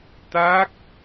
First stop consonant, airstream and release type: plain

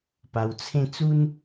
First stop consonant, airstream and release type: plain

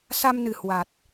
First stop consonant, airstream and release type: plain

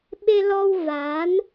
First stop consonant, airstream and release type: implosive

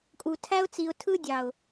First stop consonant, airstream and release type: ejective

